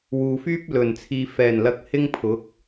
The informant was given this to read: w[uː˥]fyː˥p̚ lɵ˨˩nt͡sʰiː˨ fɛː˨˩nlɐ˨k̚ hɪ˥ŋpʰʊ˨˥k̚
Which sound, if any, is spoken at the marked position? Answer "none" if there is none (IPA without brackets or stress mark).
uː˨